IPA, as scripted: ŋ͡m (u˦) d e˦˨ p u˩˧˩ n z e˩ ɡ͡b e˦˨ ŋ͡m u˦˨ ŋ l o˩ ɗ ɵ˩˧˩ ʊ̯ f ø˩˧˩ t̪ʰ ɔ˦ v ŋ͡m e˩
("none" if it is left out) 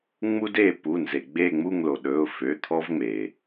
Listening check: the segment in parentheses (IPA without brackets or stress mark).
u˦